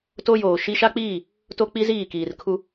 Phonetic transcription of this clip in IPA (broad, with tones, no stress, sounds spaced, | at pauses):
t o˦ j oː˨ ʃ i˦ ʃ a˦ k͡p iː˦˨ | t o˦ k͡p i˦ z iː˦˨ k iː˨ r kʰ u˦